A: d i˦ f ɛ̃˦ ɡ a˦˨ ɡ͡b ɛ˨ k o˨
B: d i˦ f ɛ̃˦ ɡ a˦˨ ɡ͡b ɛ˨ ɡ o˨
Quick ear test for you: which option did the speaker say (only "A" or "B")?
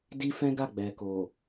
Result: A